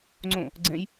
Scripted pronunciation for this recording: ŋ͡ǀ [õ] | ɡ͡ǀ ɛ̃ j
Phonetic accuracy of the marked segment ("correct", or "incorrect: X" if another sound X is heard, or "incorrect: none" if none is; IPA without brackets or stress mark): correct